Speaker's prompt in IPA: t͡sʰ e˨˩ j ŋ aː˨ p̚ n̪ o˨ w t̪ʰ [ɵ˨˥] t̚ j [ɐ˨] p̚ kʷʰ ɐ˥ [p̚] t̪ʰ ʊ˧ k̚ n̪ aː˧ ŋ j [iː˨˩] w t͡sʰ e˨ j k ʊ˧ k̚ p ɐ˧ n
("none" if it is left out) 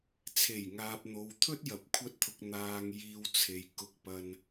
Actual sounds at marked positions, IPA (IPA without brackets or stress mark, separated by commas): ɵ˥, ɐ˨, t̚, iː˧